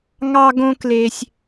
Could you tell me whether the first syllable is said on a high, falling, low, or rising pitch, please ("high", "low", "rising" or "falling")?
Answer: high